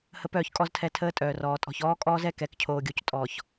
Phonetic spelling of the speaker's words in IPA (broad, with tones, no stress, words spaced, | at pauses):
hə˦pœː˦˨çkʼɔ˦ztʰɛ˦˨ tʰəː˦tʼœː˨rɔː˨ tʼɔ̤˨ç ɔː˦kʼɔː˦zɛ˦ kɛ˨˦kcʰoː˨ɡʲo˨c tʼɔ˨ç